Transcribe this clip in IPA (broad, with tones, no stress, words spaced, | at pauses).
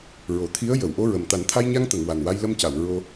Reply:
ɹo˨˩˨t̪ʰi˧˥ə̯ jə˨˩˨wʔo˧ɹə˨˩m t̪a˨˩˦nt̪ʰa˧jɲa˧ŋt̪ə˨˩˨ŋ wa˨˩nwa˧jlə˧mca˨˩˨w ɹo˧